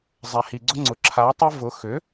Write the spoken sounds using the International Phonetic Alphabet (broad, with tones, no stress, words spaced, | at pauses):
zˤɛ˨hi˨ɡ͡ǀʊ˦ŋ͡ǀʊ˨ ǁʰa˨˥tˤʊ˦ vʊ˨˥ xʏ˨˥